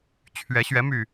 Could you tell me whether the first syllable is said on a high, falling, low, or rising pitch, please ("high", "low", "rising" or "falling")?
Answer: rising